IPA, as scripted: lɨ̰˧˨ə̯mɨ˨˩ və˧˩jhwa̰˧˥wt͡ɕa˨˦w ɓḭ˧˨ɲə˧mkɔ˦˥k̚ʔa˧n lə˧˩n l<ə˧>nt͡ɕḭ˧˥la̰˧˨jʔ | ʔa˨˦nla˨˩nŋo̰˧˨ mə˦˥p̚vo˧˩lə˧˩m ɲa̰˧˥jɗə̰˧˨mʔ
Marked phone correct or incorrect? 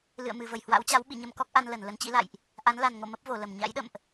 incorrect